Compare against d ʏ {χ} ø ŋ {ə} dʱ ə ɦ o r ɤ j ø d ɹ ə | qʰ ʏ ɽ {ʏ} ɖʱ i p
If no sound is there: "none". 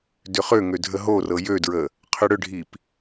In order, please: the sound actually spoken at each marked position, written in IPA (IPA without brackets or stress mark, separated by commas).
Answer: χ, ø, ʏ